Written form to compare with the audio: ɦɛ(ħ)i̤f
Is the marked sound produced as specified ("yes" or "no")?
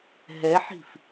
yes